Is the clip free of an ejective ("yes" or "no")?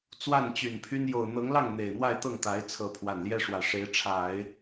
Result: yes